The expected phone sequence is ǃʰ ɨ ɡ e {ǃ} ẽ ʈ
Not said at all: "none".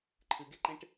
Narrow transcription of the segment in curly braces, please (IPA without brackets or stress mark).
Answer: ǃ